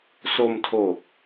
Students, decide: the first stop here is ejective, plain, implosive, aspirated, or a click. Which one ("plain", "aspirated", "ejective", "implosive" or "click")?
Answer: aspirated